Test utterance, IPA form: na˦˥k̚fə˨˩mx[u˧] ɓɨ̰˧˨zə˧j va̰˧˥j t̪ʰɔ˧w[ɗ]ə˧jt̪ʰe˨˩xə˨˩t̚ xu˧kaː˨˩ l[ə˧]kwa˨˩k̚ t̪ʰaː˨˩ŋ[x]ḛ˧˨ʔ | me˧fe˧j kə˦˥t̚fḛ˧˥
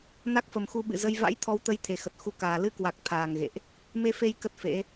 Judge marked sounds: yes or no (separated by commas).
yes, no, no, no